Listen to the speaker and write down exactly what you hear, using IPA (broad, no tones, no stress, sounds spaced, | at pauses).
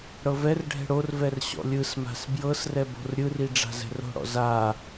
ɽ ɤ v ɛ r ɖʱ ɛ̤ ɽ o r v ɛ r ɕ ɔ̰ lʲ ɯ s m a̤ s b j ɤ s r ɛ b o̤ r ɾʲ ɯ r i ɖ͡ʐ a̤ z ɛ̤ r o̤ ɽ ɔ̰ z a